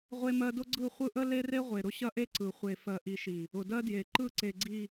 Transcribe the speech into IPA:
ʁʷ e˦ m ɜ˦ d ʊ˦ ɡ͡ǀ ɯ˦˨ χʷ ɯ˦ ʔ ə˦ l e˦ r e˦ ʁʷ e˨ ɾ ʊ˦ ɕ ɐ˦ ʔ e˦ ǀ ɯ˨ χʷ e˨ f ɜ˨ ʔ i˨ ʃ i˨ | ʊ˨ d ɜ˦ d j e˨ ǃ ɯ˦˨ ǀ e˨ ɡ͡ǀ i˨

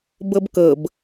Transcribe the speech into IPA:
b ɤ b k ɤ b

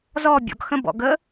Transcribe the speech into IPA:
z ɔ bʲ ɔ̰ ɡ x ə̃ b ɔ̰ ɡ ə

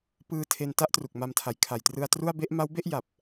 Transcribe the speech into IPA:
p ɯː˧ tʰ e˧ n t a˥˩ ʔ t r u˨˩ k̚ m a˧ m tʰ a˨˩ j kʰ a˨˩ j t r ɯ˧ a̯ t r u˥˩ a̯ b e˥˩ ʔ m a˦˥ w b e˥˩ ʔ j a˨˩ p̚

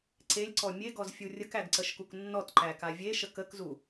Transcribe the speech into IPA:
ǀ e lʲ ǀ ɔ mʲ e ɡ ɔ z fʲ u rʲ ə k æ ɡ ǀ ə ʃ k u k nː ɔ t ǃ æ k a vʲ e ʃ ə k ə k z u

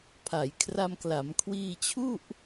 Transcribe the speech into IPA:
pʰ a˩˦ j kʰ r a˧ m k l a˩˦ m kʰ w iː˧ t͡ɕʰ u˥˩ ʔ

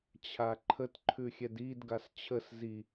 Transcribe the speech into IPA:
t͡ɕʰ a ǃʰ ə t ǃʰ ʉ xʲ ɛ d i d ɡ a s t͡ɕʰ ə s z i

